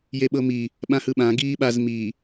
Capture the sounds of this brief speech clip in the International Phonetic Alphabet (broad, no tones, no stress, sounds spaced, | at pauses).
j e ɓ ɤ m i | ɓ ã h ɯ ɓ ã ɡ iː ɓ a z m i